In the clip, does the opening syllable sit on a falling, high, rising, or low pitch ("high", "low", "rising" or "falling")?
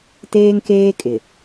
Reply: high